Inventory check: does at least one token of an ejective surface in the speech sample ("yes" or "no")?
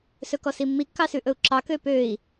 no